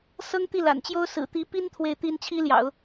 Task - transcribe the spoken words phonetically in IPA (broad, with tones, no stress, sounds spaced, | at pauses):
s ɤ˥ ŋ t̪ i˥˩ l a̰˨˩ n t͡ɕ j o˥ ʊ̯ s ɹ̩˨˩ t̪ i˧˥ p i˥ n t̪ʰ w e˥˩ ɪ̯ t̪ i˥ n t͡ɕʰ i˥ l j ɑ̰˨˩˦ ʊ̯